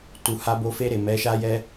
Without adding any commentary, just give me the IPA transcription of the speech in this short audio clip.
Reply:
tu˨ ha˧bo˧fe˧ɾe˨ mɛ˨˦ʃa˦jɛ˦

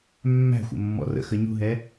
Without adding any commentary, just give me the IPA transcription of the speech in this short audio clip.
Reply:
mːæ̤xʷə̰ mːɔ̰rə̰xə ɲṳɦɛ

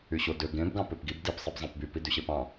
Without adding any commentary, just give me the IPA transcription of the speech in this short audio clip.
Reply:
yɕodø ɡẽb ɡɑ̃pøpɡib dip sˤibzˤẽpby pidyɕepɑ̃

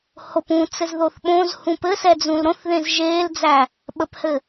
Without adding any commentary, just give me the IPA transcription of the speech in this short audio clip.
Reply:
hop ũ t͡sɘzðoθɓõzhũ pɘsɛ d͡zũlɾõθðẽz ʒeːld͡zæ | ɓəphɘ

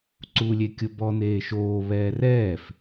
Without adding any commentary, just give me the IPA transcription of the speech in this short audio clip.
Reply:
ǀuːlʲekʲʊ bɔ n̪eːʃoː βɛːrɛːf

